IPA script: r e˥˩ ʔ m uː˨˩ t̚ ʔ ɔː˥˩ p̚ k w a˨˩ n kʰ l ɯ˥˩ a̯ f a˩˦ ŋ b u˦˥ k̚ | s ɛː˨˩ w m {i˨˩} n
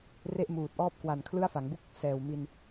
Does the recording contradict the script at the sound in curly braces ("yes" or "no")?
yes